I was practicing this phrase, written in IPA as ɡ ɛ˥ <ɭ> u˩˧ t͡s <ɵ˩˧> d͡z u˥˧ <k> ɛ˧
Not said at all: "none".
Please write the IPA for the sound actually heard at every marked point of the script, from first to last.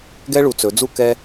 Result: ɭ, ɵ˩˧, k

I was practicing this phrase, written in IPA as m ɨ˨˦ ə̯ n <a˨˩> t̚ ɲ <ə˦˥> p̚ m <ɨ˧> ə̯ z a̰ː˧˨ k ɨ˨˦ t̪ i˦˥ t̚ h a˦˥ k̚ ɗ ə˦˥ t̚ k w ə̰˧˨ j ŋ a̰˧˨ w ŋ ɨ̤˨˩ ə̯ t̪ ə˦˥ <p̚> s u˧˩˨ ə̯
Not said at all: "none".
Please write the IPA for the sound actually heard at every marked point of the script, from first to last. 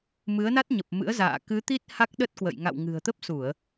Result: a˦˥, ə˨˩, ɨ̰˧˥, p̚

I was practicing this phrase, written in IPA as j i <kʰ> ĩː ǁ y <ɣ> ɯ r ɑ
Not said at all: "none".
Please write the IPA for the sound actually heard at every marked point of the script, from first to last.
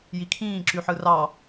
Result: kʰ, ħ

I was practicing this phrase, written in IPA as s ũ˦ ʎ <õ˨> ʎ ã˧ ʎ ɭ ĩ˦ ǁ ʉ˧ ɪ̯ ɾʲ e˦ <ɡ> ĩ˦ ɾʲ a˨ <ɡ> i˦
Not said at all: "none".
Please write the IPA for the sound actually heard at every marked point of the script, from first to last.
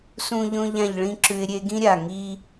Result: õ˦, ɡ, ŋ

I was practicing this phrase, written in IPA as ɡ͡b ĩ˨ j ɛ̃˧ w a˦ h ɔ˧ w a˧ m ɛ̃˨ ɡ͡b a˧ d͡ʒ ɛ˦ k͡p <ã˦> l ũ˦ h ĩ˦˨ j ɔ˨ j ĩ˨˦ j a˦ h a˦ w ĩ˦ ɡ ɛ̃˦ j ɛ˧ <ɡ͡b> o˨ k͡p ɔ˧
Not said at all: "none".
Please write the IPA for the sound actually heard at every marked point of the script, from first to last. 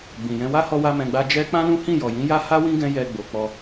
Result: ã˦, ɡ͡b

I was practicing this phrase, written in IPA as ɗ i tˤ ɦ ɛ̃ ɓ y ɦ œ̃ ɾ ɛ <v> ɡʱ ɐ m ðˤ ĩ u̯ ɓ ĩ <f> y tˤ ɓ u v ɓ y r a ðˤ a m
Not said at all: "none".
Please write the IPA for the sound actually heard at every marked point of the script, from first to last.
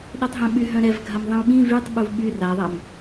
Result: v, v

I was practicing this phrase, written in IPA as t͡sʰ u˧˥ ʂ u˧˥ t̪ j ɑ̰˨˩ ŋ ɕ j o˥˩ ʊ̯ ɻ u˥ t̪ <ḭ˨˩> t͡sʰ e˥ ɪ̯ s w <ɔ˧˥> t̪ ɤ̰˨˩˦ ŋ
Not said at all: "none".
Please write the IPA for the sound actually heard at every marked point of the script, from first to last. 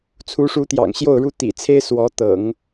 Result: ḭ˨˩, ɔ˧˥

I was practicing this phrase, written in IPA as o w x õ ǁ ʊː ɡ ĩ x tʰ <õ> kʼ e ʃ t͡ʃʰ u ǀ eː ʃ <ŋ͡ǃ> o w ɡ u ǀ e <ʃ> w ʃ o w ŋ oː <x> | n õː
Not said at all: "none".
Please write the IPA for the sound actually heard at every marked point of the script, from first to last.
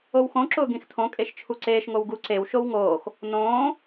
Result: õ, ŋ, none, x

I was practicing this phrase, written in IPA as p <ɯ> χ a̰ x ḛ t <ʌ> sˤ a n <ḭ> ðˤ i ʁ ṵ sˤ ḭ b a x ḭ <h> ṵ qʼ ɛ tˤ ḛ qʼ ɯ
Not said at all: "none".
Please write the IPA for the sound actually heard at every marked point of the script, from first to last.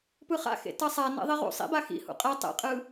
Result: ɯ, ʌ, ḛ, h

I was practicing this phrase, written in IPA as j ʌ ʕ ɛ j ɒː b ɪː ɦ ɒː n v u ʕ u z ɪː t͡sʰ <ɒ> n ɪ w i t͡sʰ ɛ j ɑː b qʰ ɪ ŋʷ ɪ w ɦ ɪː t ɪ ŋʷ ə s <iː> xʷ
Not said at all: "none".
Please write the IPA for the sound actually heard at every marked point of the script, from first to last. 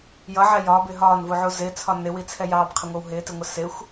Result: ɒ, ɪː

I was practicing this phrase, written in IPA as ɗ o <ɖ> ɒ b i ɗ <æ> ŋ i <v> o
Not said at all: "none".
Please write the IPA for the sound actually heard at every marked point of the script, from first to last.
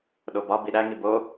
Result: b, æ, b

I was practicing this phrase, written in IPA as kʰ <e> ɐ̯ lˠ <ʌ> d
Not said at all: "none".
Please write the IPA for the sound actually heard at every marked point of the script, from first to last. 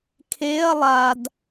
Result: e, a

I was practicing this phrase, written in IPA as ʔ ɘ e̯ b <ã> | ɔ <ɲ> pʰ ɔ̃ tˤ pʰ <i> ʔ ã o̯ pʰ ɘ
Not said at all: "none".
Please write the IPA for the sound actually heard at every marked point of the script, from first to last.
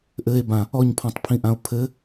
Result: ã, ɲ, ĩ

